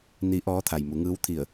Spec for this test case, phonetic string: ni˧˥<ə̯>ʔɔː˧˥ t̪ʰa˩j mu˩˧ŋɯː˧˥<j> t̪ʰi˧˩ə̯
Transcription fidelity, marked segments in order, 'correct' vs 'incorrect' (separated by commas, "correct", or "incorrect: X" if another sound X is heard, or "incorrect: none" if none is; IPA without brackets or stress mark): incorrect: none, incorrect: w